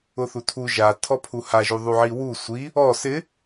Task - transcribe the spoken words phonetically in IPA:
ʊ θ u tʰ u ʒ a tʰ ɔ pʰ u h a ʒ u ðˤ u ʕ i w u sʷ i | ɔ s ɪ

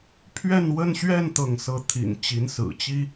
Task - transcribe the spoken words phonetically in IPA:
pʰ ɥ ɛ˥˧ n w ə˥˧ n ɕ ɥ ɛ˥˧ n t̪ ɤ˥˧ ŋ s ɤ˥˩ t̪ʰ ḭ˨˩ n t͡ɕ i˧˥ n s ɹ̩˨˩ t͡ɕ i˥

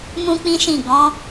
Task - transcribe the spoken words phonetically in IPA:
m ũ˦ k͡p ĩ˦ ʃ ĩ˦˨ ɡ ɔ̃˨˦

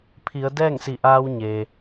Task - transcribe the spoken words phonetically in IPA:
pʰ i˩˧ ə̯ d ɛː˥˨ ŋ s i˧˩ ʔ aː˧ w ɲ e˩

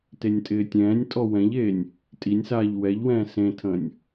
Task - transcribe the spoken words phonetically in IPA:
t e nʲ tʼ ɪː tʲ ɛ̃ː nʲ tʼ ɔ w ɛ̃ ʎ eː nʲ | tʼ i nʲ s aː ʎ w ɛ ʎ w ɛ̃ː s ẽ tʰ ə̃ː nʲ

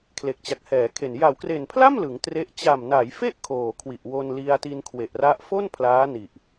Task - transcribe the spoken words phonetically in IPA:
kʰ l e˨˩ k̚ t͡ɕ a˨˩ k̚ h ɛː˩˦ kʰ e˨˩ n j a˩˦ w k r e˨˩ n pʰ l a˥˩ m l ɯ˩˦ ŋ t r e˦˥ ʔ t͡ɕ a˨˩ m n a˩˦ j f e˥˩ ʔ kʰ oː˨˩ kʰ w i˨˩ ʔ w o˧ n l i˧ a̯ t i˧ n kʰ w e˨˩ ʔ r a˦˥ ʔ f o˥˩ n pʰ l aː˦˥ n i˨˩ ʔ

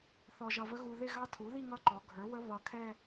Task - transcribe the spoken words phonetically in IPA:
θ ɔ˧ ʒ ʌ˧ v ə˦˥ ɣ u˧ ð ɪ˥˧ ɣ ɑ˦˥ tʰ u˩˥ ð i˥˧ ŋ ʌ˦˥ ǃ ɔ˩˧ ɡʱ ə˞˩˥ w ə˦˥ β ʌ˧ kʰ ɛ˥˧

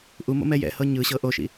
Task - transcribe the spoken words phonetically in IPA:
ʔ u m o̰ m ɛ j ɛ̰ h ɤ ɲ ɯ ɕ ɤ ʔ o ʃ ḭ

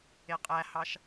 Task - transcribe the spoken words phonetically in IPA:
e qʼ æ h ɑ ʃ

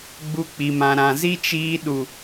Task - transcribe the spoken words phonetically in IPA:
ɡ͡b u˧ k͡p i˨ m ã˨ ɾ ã˨ z i˦ t͡ʃ iː˧ ɗ u˨

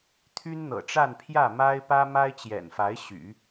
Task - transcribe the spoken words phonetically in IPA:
t̪ʰ y˥ n n̪ ɤ̰˨˩ ʈ͡ʂ a˥˧ n pʰ j ä˥˩ m a˥ ɪ̯ p ä˥ m a˥ ɪ̯ t͡ɕ j ɛ̰˨˩ n f a˧˥ ɪ̯ ɕ y̰˨˩˦

